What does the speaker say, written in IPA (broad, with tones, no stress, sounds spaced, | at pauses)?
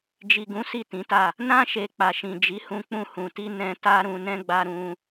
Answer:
d͡ʒ i˨ ɡ ũ˨˦ s i˦˨ t ĩ˨˦ t a˦˨ | n ã˧ ʃ e˨ k͡p a˨ ʃ ĩ˨ d͡ʒ i˨˦ h ũ˧ k͡p ũ˧ h ũ˨ t i˧ n ɛ̃˧ t a˦ ɾ ũ˧ n ɛ̃˦ ɡ͡b a˦ ɾ ũ˦